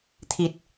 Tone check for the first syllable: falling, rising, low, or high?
low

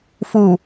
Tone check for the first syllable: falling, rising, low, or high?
low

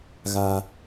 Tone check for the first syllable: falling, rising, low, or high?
high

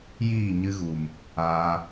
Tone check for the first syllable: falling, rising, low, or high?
falling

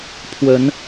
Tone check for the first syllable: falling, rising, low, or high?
rising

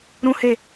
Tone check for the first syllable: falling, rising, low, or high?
high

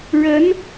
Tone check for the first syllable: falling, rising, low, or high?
rising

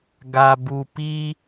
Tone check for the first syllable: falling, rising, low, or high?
low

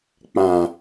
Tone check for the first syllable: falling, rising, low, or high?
low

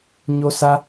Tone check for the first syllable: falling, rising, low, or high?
high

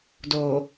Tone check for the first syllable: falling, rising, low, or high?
low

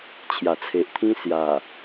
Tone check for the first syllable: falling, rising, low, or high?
low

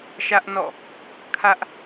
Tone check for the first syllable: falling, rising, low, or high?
high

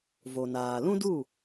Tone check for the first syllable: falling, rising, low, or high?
low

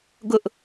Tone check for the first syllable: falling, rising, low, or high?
high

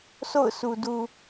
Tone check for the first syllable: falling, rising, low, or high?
falling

